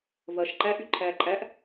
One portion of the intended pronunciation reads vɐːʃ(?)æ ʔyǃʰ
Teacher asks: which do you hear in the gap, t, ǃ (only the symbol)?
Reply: ǃ